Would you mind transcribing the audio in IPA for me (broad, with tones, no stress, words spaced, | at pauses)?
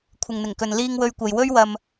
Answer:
kʷʰɪ˨ŋn̪ɪ˨˩ŋkɵ˨n liː˧ŋ wɵ˧ɥkʷɐ˨j wɵ˥ɥ wɐ˧m